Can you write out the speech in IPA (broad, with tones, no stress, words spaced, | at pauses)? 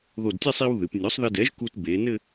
ðo˧˩dtʲɛ˥˧sˤ i˧w ðɨ˩˧pnʲo˩˥sˤ ðɘ˧dɛ˩˥ʒku˧t be˩˧ nɘ˥˧